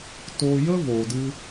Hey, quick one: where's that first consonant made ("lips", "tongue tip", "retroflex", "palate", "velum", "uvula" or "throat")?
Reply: tongue tip